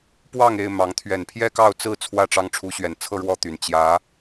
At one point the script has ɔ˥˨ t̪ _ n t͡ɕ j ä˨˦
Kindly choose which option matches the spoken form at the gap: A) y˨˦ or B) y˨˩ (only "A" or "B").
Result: B